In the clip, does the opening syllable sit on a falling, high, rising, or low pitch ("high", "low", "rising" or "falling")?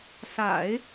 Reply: low